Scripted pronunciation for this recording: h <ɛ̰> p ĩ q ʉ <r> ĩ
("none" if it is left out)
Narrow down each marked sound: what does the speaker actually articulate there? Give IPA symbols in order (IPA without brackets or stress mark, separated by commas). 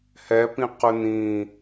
ɛ, n